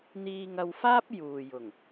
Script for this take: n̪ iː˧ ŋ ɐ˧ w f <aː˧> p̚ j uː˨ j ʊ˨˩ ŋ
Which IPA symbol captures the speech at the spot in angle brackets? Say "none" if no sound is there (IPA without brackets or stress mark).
aː˥